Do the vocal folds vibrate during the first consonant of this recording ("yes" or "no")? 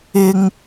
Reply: yes